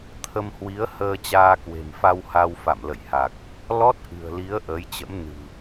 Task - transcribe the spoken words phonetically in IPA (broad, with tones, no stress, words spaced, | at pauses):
t̪ʰə˧mhwi˨˦ə̯ həː˧t͡ɕaː˧kwe̤˨˩mfa˧w ha˧wfa̰˧˨m lə̰˧˨jha˨˩k̚ | lɔ˦˥t̚ʔɨ̤˨˩ə̯li˨˦ə̯ ʔəː˨˦jt͡ɕə̰˧˥m nɨ̤˨˩